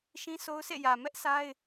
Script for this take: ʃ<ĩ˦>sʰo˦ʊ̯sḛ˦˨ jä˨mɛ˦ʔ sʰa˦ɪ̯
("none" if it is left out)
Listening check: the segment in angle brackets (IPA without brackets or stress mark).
ĩ˦